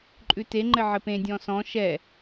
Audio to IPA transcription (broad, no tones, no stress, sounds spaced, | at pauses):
ǃʼ ʉ t e ŋ͡ǃ ɘ ʕ ɘ p ẽ dʲ ɔ̃ s ɔ̃ ʃ ɛ